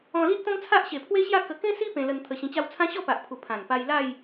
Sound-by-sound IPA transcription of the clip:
ɔ̃˧li˦ʔt̪ɔ̃˦ŋt͡sʰa˦ʔ ɕe˨˩pʰwe˦ɕja˥˧kə˧ kẽ˦si˦ pẽ˧lə˧n t̪ʰə˨˩ ɕĩ˧t͡ɕa˥˧w t͡sʰã˦ɕɔ˥˧pa˨ʔpʰu˨˩ pʰã˨˩n pa˧jla˥˧j

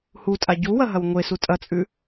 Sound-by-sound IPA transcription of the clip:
hutʼa ɟu wɐɦɐwŋʷesu tʼɐt͡sʼʉ

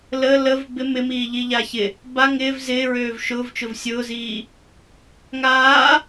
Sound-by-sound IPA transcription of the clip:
lə ləv bɪ mɪmiːʎiʎa çɪ | ba ŋɪːv zɪːɹøːv ʃʊːvt͡ʃʊv sʲʊːziː | ŋaː

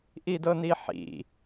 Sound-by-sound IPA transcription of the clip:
ʔidɤniħḭ

